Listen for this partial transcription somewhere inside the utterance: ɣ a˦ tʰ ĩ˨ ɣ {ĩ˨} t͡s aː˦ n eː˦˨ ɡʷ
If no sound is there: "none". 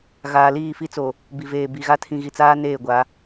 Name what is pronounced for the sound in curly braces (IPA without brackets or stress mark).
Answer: i˨